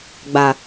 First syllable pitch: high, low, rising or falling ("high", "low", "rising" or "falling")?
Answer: low